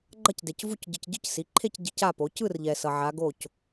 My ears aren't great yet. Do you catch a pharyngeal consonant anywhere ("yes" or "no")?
yes